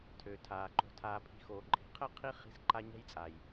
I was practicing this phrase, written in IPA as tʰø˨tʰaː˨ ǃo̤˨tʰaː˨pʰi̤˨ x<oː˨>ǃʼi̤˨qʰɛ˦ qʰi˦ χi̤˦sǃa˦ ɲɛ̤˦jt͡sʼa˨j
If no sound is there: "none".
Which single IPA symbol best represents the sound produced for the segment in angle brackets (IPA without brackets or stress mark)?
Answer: oː˨